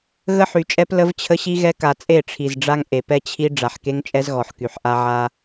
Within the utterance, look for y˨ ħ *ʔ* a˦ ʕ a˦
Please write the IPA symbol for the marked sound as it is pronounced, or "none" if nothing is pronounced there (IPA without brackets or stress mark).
ʔ